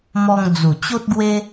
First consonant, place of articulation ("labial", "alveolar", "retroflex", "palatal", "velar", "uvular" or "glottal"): labial